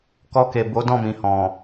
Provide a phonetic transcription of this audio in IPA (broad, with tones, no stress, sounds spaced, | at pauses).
k ɔ˧ k e˨ b o˨˦ d ɔ̃˦˨ m ĩ˨ h ɔ̃˨